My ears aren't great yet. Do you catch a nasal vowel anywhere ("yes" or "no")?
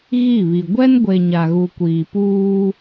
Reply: no